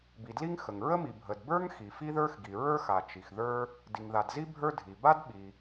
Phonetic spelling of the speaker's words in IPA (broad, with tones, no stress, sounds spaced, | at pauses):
b i˩ d l i˥ ŋ x ə˩ ŋ ɹ ə˥ m i˩ bʱ ə˩ d b ə˞˥ ŋ x i˩ f i˥ ð ə˞˥ x ɡ i˩ ɹ ə˞˥ x a˩ t͡ʃ i˩ x ð ə˞˥ | d i˩ ŋ ð a˩ d z i˥ bʱ ə˞˥ dʱ i˩ b a˥ d ɓ i˩